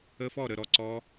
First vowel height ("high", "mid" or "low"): mid